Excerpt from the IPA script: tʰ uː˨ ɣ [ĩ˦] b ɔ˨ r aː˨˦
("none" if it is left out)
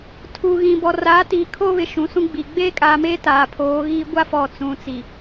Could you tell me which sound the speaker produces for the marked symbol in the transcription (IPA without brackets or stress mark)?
ĩ˨